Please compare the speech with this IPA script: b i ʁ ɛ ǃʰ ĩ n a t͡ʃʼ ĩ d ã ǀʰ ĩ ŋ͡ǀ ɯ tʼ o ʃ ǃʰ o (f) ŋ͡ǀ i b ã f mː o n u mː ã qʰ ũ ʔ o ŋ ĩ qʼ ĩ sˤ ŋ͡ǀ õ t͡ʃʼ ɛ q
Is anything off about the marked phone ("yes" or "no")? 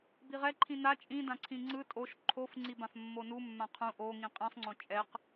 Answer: no